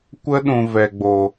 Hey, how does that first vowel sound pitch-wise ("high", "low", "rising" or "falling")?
high